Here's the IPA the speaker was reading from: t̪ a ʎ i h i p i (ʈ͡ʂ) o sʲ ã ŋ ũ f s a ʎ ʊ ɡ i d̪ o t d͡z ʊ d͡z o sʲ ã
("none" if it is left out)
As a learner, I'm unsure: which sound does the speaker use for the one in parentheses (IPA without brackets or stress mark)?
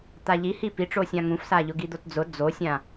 ʈ͡ʂ